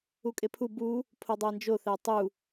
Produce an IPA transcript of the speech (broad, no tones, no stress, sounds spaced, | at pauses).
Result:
u kʼ e pʰ u b u | pʰ o dˤ æ n d͡ʒ o θ æ tˤ u